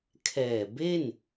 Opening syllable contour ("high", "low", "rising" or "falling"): low